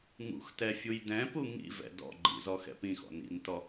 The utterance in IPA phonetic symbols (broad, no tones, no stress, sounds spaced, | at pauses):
ŋ ṵ x t ɛ fʲ u j d ɛ̃ p u ŋ ḭ v ɛ̰ d ɔ̰ ɡ͡ǃ ḭ z ɔ x ɛ̰ p ĩ x ɔ̰ n ḭ n t ɔ